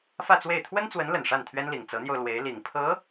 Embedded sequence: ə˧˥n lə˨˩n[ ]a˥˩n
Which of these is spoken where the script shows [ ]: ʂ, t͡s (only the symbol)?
ʂ